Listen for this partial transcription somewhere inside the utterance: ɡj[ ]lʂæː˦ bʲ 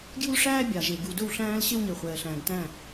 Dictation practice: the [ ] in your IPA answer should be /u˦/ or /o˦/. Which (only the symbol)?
u˦